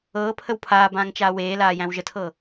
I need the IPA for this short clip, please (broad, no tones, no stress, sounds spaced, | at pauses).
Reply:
ɤː pʰ ə w pʰ aː b ãː ŋ t͡ʃ aː w eː l aː j æ̃ w ʒ ə tʰ ɤ